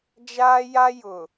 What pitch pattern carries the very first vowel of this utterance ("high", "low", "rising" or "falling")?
high